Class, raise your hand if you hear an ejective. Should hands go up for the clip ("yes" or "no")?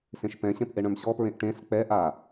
no